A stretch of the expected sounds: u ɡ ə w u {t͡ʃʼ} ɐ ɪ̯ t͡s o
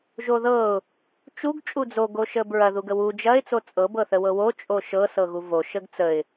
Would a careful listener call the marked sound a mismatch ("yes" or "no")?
yes